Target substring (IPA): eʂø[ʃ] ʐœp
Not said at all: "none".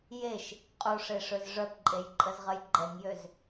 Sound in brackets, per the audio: z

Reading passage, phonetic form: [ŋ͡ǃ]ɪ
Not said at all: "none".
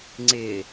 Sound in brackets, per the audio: ŋ͡ǀ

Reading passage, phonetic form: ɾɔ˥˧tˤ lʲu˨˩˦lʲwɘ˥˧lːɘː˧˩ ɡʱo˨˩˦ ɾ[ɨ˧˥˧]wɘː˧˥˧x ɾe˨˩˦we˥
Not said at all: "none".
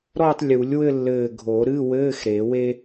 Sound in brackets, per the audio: ɨ˧˥˧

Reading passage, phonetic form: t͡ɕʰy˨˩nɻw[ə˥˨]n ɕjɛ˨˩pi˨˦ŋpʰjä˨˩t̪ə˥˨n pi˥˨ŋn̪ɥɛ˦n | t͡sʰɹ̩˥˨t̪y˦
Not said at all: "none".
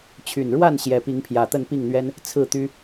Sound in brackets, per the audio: a˥˨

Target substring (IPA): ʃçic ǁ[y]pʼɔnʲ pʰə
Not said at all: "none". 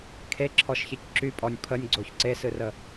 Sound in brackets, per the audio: y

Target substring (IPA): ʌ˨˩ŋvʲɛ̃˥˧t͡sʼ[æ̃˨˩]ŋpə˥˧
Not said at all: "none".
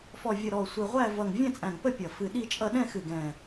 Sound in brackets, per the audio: æ̃˨˩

